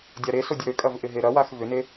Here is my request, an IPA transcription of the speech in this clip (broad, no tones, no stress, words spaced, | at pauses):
dʲaɾeso dʲəɾøkʼɐv ʔɪɦeɾɐwax vʏne